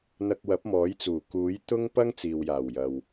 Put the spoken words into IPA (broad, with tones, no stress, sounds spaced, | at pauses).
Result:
n̪ ɐ˧ k̚ w ɐ˨˥ p̚ m ɔː˨˥ j t͡s uː˨˩ k uː˨˥ j t̪ ʊ˥ ŋ p ɐ˥ ŋ t͡s iː˨ w j aː˨˩ w j ɐ˨ w